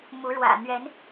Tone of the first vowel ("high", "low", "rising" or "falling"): rising